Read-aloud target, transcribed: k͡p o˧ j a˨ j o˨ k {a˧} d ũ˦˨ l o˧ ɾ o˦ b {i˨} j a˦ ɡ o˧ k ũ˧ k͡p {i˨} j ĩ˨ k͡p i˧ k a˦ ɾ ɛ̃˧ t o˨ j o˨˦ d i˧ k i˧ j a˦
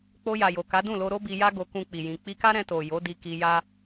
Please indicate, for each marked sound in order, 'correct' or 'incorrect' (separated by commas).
incorrect, incorrect, correct